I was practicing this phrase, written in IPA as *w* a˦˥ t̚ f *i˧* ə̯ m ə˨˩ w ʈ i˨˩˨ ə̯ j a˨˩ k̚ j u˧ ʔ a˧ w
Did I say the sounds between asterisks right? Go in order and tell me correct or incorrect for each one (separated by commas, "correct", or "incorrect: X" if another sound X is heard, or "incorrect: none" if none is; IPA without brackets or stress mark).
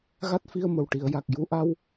incorrect: ɣ, correct